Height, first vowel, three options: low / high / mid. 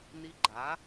high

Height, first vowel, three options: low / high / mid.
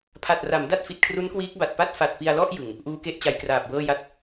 low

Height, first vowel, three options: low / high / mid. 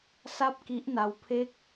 low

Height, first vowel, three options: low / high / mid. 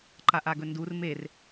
low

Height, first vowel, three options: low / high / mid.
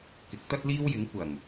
high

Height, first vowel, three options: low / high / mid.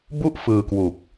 high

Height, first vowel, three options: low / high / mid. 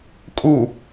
high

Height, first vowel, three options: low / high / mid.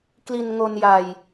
high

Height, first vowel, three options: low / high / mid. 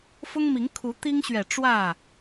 high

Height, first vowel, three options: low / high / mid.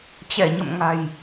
mid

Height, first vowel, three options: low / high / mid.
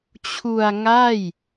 high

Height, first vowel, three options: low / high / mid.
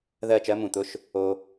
mid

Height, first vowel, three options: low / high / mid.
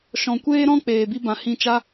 mid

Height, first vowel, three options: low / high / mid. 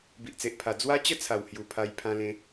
high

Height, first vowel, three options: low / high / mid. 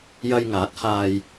low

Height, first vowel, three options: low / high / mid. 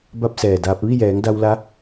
low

